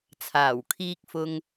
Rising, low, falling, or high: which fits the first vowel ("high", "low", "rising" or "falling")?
low